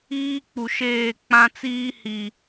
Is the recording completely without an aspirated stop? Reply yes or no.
yes